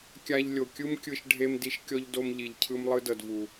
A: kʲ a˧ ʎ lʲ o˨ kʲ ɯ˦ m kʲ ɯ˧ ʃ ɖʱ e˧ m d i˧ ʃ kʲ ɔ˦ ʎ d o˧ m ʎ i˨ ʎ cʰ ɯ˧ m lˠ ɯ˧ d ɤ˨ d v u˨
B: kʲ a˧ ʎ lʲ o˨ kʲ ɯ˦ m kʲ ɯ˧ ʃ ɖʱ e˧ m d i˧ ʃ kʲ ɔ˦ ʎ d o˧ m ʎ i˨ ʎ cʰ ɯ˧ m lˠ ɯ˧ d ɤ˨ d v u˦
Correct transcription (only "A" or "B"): A